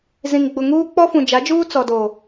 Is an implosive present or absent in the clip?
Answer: absent